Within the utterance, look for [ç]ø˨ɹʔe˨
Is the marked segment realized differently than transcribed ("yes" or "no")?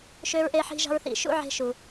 yes